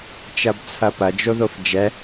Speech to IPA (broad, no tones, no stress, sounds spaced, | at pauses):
t͡ʃ ɐ b t͡sʰ ɐ p ɐ d͡ʒ o ð o f d͡ʒ ɛ